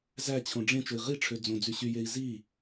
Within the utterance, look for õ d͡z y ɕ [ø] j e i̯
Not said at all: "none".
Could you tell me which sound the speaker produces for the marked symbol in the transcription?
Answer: y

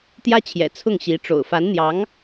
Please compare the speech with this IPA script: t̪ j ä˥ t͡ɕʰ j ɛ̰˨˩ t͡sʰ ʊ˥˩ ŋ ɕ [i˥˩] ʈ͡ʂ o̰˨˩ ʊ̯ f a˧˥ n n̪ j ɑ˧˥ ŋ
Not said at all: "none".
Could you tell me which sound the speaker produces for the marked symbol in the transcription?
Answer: i˧˥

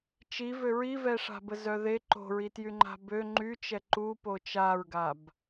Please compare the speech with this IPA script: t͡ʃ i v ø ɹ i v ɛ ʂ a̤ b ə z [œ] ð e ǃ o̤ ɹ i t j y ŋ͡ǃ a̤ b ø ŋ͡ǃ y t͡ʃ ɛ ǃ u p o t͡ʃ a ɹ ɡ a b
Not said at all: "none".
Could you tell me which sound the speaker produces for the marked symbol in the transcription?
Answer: œ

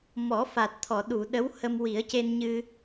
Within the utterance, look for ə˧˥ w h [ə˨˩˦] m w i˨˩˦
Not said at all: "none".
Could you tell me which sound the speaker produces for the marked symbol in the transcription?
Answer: ə˧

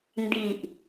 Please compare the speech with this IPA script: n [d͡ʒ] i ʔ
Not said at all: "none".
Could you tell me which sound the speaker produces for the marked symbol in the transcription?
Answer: d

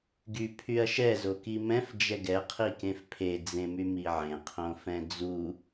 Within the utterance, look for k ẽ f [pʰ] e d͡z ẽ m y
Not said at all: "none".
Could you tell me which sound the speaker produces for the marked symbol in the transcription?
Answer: pʰ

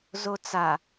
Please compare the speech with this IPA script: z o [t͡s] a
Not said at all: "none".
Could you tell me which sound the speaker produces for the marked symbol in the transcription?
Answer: t͡s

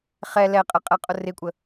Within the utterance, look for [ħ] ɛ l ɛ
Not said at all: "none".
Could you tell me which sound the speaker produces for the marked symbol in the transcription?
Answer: χ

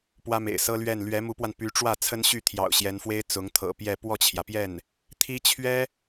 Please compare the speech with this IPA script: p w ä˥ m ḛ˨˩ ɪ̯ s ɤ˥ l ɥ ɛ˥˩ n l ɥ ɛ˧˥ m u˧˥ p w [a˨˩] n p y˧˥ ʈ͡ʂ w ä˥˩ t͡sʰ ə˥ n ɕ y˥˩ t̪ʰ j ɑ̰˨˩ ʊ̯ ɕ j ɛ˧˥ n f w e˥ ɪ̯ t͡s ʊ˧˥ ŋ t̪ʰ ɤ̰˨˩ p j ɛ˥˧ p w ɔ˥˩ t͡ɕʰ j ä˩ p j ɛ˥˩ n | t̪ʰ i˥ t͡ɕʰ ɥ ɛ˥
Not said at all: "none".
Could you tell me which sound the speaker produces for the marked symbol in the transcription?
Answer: a˧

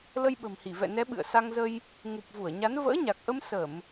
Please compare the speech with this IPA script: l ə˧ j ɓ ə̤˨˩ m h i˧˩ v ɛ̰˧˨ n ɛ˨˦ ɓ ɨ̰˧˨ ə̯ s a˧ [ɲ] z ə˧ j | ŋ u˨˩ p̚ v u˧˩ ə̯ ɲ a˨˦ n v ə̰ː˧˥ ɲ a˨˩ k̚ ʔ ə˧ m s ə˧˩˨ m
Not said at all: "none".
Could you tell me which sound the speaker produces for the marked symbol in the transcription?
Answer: ŋ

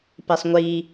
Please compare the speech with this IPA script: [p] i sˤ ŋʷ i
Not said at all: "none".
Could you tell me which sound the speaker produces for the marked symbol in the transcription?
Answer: p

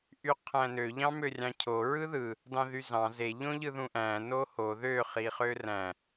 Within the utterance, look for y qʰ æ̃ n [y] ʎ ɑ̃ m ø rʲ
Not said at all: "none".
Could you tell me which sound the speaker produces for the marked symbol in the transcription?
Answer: ø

